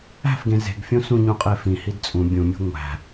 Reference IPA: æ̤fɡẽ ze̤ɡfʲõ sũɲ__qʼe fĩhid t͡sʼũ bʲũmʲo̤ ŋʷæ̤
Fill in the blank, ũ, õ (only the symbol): ũ